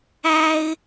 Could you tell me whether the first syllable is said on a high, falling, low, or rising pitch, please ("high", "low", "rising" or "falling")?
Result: high